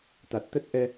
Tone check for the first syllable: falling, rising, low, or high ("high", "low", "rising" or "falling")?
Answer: low